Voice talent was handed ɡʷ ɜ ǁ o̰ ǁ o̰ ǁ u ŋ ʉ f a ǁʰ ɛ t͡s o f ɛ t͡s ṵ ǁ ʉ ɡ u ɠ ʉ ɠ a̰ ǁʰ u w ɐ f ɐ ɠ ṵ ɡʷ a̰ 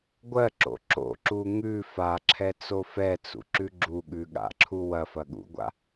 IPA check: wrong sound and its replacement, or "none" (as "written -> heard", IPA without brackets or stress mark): ɡ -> ɡ͡ǁ